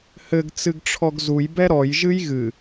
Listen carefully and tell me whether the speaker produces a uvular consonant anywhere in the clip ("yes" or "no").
no